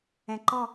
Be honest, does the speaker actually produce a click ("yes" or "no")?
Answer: yes